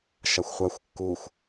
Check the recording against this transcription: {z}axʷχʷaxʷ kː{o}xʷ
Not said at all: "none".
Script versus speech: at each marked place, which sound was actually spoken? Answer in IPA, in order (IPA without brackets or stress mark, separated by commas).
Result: ʃ, u